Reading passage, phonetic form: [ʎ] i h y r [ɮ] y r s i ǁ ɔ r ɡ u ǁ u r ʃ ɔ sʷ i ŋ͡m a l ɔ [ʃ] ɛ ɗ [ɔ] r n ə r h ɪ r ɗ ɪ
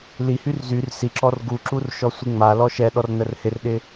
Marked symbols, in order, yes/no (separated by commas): no, no, yes, yes